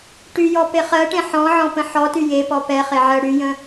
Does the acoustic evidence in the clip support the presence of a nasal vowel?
yes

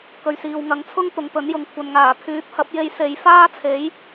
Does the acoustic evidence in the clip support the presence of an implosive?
no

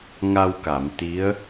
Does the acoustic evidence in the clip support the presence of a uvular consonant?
no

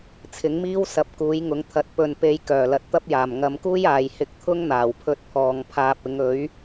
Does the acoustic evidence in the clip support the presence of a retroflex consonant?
no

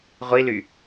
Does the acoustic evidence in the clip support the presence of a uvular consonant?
yes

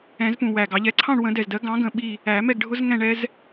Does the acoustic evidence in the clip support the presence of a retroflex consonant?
yes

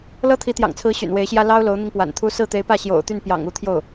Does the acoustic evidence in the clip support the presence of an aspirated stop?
yes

